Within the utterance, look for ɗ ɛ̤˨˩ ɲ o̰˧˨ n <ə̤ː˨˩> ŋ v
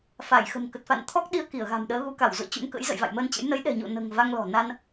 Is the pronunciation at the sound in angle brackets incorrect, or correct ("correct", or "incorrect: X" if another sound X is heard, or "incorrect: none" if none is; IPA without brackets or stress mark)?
correct